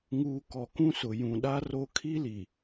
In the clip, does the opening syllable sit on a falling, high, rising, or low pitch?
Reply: low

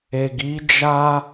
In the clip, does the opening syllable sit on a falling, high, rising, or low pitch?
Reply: low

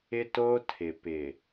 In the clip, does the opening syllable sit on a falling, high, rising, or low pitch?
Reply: high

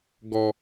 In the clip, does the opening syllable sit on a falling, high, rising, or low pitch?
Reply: low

